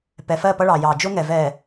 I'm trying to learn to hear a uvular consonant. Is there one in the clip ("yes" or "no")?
no